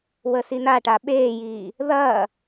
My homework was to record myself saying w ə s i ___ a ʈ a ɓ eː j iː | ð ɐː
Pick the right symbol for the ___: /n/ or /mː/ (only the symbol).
n